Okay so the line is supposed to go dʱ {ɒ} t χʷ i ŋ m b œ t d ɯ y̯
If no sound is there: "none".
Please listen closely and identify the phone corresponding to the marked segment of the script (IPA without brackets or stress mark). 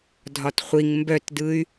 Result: ɒ